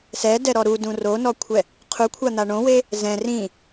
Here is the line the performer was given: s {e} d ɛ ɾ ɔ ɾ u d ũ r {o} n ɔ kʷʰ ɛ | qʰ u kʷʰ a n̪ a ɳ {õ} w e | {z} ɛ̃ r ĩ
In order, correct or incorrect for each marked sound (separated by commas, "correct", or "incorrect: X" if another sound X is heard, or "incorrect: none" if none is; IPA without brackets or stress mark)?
incorrect: ɛ, correct, correct, correct